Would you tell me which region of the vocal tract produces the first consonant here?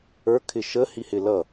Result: velum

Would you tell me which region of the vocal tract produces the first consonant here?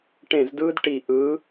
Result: retroflex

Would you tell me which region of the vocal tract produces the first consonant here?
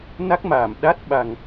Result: tongue tip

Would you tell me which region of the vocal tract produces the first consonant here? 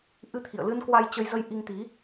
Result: throat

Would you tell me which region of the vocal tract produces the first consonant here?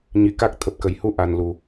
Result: palate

